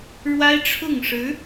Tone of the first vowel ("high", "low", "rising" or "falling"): high